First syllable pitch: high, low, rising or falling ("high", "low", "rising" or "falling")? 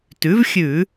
rising